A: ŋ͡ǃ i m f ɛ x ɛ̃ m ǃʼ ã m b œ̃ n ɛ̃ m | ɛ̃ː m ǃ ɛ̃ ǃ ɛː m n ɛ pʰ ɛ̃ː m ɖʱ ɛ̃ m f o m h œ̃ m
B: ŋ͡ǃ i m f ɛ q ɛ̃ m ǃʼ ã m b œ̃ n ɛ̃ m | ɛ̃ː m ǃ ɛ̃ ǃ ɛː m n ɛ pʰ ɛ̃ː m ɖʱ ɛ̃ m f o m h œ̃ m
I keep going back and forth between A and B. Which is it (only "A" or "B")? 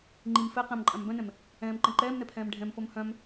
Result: B